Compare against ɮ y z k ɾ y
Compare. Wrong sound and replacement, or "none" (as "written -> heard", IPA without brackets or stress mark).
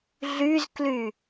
ɾ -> l